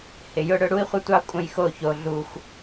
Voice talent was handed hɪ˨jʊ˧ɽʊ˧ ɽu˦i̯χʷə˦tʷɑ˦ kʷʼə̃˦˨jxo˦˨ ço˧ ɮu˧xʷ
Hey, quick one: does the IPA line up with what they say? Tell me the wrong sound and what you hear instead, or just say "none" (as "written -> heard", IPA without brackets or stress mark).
none